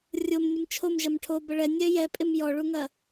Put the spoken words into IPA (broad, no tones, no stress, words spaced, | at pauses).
rʲomnʲəm t͡ʃʰomʒɐm ʈʰobə ɭɛnʲɛ jɛpʼɪm jɔɭuŋɐ